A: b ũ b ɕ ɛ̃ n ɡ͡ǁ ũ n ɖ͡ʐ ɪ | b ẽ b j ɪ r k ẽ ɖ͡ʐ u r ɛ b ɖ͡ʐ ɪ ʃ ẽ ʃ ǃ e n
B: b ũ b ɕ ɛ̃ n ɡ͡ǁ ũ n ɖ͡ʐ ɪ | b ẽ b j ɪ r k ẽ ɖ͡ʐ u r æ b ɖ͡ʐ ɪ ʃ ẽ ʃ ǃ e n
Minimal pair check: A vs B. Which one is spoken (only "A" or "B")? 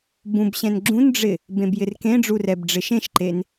A